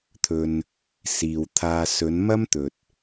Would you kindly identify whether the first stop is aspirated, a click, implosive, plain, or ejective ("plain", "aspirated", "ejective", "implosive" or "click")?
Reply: aspirated